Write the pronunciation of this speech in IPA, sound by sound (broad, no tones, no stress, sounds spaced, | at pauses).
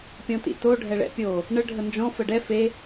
pʲ ɔ̃ t ḭ t o ɖʱ ɛ ɭ ɛ̰ pʲ o | ɳ ə ɖʱ ə n d͡ʒ ɔ̃ f ə ɖ ɛ f e